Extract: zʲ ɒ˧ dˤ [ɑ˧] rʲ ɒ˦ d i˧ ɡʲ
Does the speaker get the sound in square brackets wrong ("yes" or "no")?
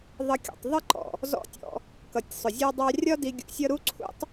no